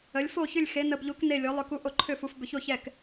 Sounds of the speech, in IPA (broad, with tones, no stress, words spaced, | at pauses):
ə˨˥lʲ fo˥˨çʏ˥˨lʲ xe˨˥nə˧bʎu˨˥k ne˥˨lʲo˨˥lˠʏ˥˨ku˥˨ ʔo˥˨ǃʰʏ˥˨fu˨˥f bʏ˧ço˥˨çɛ˥˨k